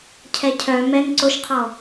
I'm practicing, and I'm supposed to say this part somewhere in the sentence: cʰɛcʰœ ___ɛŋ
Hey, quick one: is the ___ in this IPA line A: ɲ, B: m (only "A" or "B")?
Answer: B